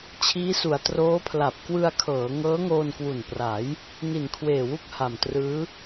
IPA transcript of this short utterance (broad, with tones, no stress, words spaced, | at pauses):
t͡ɕʰiː˦˥su˩˦a̯ troː˦˥pʰla˨˩p̚ kwɯ˧a̯kʰɤː˩˦ ŋɤː˦˥ŋoː˧nkwu˨˩npra˩˦j | ni˨˩nkʰweː˨˩wu˦˥k̚ ha˨˩mtrɯː˦˥